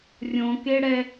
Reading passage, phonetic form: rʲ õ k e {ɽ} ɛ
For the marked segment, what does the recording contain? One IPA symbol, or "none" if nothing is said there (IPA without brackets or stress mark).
ɽ